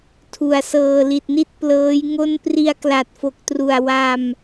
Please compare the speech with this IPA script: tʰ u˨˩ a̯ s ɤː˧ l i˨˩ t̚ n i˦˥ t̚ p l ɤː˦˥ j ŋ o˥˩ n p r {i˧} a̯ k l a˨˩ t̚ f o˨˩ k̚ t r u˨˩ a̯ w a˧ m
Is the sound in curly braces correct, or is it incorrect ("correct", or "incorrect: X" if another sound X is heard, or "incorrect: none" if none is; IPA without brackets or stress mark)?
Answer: correct